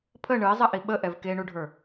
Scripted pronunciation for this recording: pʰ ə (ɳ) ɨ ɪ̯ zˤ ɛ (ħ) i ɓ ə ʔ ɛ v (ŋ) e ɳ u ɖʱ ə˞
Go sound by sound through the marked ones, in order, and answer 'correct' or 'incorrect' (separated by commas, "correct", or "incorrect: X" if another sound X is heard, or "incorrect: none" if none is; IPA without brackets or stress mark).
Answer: correct, incorrect: ʔ, incorrect: k